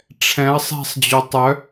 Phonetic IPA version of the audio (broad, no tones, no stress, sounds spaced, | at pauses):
ʈ͡ʂʰ ɛ̃ ɐ̯ sˤ ɛ̤ sˤ d͡ʑ o tˤ œ